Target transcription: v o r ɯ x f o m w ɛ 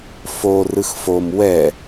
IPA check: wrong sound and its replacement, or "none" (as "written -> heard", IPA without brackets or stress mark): v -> f